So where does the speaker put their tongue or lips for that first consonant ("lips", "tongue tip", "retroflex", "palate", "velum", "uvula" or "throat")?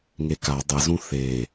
velum